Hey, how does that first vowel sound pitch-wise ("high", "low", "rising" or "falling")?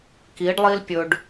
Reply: rising